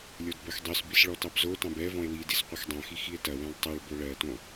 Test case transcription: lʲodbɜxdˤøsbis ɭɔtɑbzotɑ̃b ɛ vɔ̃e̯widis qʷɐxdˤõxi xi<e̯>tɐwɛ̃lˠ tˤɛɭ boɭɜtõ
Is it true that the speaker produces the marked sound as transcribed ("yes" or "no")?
yes